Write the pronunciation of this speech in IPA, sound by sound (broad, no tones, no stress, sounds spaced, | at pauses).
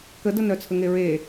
k ə d ə n œ t͡sʰ ə ŋ e ɹ e